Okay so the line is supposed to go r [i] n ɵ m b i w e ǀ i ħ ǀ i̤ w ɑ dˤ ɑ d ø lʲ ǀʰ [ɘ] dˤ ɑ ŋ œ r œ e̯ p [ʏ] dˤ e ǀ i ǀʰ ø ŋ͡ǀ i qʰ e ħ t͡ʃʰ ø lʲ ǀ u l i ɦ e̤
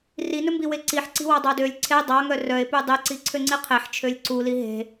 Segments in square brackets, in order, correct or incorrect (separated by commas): correct, incorrect, incorrect